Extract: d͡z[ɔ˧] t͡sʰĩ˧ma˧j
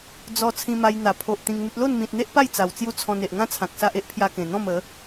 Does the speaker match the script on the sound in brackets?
yes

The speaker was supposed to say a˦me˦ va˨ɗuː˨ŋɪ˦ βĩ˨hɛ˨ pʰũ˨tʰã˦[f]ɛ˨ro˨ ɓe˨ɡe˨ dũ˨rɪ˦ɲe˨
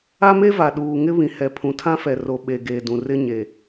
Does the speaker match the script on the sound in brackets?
yes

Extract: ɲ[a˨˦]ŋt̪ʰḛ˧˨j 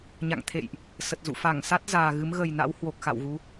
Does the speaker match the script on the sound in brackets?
no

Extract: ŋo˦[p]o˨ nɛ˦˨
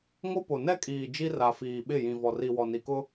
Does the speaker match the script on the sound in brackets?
yes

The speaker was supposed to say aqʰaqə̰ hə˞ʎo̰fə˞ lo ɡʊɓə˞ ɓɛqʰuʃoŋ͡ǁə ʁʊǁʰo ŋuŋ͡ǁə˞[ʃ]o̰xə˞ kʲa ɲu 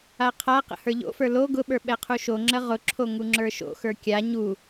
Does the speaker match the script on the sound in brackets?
yes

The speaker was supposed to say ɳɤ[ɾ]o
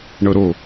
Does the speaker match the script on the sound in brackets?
yes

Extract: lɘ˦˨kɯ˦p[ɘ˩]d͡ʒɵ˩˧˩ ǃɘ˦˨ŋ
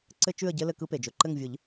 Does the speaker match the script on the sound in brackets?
no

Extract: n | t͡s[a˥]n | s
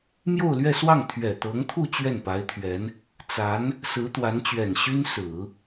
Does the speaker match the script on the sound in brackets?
no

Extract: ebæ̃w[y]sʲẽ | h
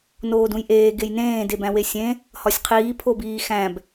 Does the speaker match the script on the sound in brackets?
no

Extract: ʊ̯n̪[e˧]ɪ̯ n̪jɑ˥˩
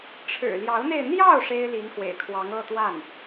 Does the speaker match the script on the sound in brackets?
yes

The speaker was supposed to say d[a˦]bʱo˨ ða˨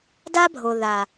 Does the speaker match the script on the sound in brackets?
yes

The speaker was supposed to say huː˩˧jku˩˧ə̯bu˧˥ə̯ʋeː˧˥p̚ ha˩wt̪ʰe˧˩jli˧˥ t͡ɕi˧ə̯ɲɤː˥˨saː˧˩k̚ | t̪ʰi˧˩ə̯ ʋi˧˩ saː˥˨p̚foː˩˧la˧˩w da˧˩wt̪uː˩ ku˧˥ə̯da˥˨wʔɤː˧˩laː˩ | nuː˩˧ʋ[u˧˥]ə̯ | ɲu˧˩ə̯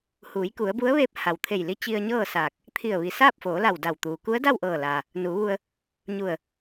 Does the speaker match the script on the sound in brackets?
no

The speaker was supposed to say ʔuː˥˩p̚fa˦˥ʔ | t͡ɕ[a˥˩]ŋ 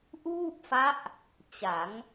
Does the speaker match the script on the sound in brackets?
no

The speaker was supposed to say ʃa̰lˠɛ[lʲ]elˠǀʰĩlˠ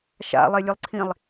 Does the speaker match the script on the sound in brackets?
yes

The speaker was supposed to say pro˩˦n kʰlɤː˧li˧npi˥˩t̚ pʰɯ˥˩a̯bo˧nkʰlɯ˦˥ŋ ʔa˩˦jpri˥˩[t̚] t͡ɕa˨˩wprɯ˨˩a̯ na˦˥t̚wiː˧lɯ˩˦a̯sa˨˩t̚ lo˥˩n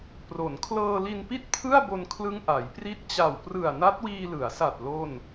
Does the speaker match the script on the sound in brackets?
yes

